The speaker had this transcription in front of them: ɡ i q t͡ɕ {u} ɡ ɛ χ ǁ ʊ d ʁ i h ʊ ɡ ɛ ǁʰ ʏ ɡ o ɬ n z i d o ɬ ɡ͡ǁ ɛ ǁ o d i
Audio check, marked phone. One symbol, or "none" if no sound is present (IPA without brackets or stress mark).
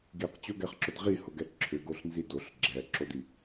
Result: o